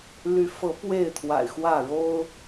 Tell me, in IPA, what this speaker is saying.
l y˨˦ f ɤ˨˦ p w e˥˨ ɪ̯ t̪ʰ w a̰˨˩ ɪ̯ x w ä˥˨ ɻ o˦ ʊ̯

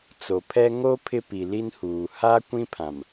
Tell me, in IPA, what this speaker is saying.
t͡s o˨ pʰ ɛ˦ ŋ o˦ pʰ ɪ˦ p i˨ l i˦ n h uː˨ h aː˦ kʷ ĩ˦ pʰ ã˨ m

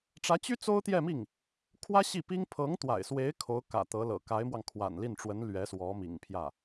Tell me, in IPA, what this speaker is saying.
ʈ͡ʂ ä˧˥ t͡ɕ y˥ t͡s o˥ ʊ̯ t̪ j ɛ˥˧ m i˥˩ ŋ | kʰ w ä˥ ɕ i˥˩ p i˥ ŋ pʰ ɤ˧˥ ŋ t̪ w a̰˨˩ ɪ̯ s w e˧˥ ɪ̯ kʰ o˧˥ ʊ̯ k ä̰˨˩ t̪ ɤ˧˥ l ɤ̰˨˩ k a˧˥ ɪ̯ m w ɑ˧ ŋ kʰ w a̰˨˩ n l i˥˩ n ʈ͡ʂ w ə˧˥ n l ɥ ɛ˧˥ s w ɔ˧˥ m ḭ˨˩ ŋ pʰ j ä˥˩

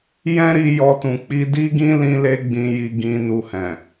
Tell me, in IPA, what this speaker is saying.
j ɛ̃˦ ɾ i˧ j ɔ˧ t ũ˨ k͡p i˧ d i˦ ɡ ĩ˦ l ĩ˦ l e˦ ɡ͡b ĩ˦ j i˦ ɡ ĩ˧ n u˧ h ɛ̃˨

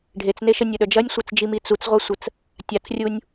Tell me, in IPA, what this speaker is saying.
ɖʱ e t͡s n e ʃ ə nʲ ə ɗ œ d͡ʒ ɐ nʲ sʷ ɐ t͡s d͡ʒ i m i t͡s u t͡s ʁʷ a sʷ ə t͡s | tʲ a t͡s rʲ u nʲ

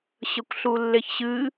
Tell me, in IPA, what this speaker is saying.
ɕ ə kʷ ɬ u lː e ç ɕ ɨ

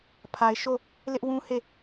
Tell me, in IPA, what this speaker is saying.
pʰ a˨ ɪ̯ ʃ o˦˨ | l ɪ˦ ʔ w ũ˦ h e˦˨

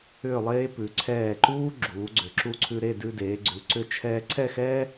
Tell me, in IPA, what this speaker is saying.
ʏː˥˧ lˠ eː˥ p ʉ˩˧ ǀʰ ɛː˧˩ ǃ uː˥ ɡ͡ǁ uː˩˧ ɡ͡ǀ ʏ˩˧ ǁ u˧ ǀʰ ʉ˧ ɾ e˥˧ d ʉ˧ d eː˩˧ ɡ͡ǀ ʉ˩˧ ǀ ʏ˧ t͡ʃʰ ɛː˧ ǀʰ ɛ˥˧ x ɛ˥

